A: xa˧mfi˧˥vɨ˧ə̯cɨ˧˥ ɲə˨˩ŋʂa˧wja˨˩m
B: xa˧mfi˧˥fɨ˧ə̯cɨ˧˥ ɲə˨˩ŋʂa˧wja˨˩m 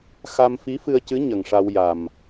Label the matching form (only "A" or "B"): B